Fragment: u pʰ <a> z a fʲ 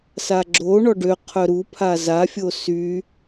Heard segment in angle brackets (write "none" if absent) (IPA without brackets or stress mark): a